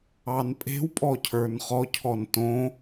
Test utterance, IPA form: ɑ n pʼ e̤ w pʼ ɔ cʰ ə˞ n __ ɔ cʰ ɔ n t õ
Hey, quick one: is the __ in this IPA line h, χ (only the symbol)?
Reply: χ